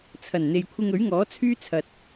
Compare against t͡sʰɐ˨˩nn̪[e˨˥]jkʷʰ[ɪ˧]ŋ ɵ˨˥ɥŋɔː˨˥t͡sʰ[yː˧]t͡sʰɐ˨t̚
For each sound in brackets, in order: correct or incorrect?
incorrect: e˨, correct, incorrect: yː˥

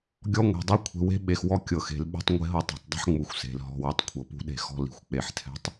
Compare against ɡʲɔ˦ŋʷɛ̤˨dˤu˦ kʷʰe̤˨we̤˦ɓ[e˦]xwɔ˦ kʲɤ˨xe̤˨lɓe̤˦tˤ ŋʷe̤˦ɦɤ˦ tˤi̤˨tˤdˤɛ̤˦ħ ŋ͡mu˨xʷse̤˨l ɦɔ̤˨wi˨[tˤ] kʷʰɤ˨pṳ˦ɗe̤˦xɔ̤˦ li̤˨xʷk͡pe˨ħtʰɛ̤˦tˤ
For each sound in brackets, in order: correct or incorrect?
incorrect: e˨, correct

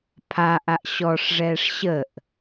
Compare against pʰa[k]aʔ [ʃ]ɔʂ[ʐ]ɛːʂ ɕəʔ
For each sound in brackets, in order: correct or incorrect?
incorrect: ʔ, incorrect: ɕ, correct

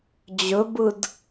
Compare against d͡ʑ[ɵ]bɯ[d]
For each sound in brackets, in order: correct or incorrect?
correct, correct

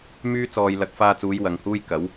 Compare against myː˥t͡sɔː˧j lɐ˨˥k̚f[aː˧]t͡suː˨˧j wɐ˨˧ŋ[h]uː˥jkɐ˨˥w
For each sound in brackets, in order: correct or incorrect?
correct, correct

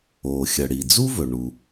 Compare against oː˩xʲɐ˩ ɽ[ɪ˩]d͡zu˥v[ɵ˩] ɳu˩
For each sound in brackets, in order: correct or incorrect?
incorrect: i˩, correct

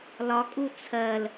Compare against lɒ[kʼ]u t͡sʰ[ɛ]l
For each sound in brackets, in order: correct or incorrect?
correct, incorrect: ɜ

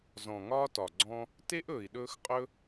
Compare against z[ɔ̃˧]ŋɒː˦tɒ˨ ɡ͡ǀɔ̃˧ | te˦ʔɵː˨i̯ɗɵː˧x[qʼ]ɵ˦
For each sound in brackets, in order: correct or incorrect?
incorrect: ɔ̃˨, correct

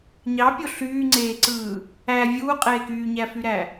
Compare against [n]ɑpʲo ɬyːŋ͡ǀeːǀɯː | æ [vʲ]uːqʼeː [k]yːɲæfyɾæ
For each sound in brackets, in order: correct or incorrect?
incorrect: ɲ, correct, correct

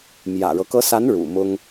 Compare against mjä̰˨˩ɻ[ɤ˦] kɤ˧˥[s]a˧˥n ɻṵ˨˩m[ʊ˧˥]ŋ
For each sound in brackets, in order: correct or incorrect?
correct, correct, incorrect: ʊ˥

